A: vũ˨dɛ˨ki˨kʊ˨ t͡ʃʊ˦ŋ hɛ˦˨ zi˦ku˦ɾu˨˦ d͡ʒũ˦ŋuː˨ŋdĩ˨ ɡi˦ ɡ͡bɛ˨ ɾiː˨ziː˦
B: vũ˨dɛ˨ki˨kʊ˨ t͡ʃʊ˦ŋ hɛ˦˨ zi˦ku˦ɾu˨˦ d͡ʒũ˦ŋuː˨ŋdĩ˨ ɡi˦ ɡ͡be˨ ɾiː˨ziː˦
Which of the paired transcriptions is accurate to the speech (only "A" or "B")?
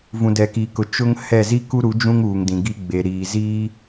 B